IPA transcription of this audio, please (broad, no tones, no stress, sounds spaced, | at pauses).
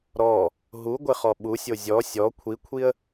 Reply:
ɾ ɔ | ɦ u ɡʷ ɪ χ ɔ ɓ u sʲ o zʲ ɔ sʲ ɔ kʷʰ i kʷʰ i ə̯